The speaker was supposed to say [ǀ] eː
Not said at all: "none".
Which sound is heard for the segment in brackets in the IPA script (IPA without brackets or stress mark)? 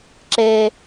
ǁ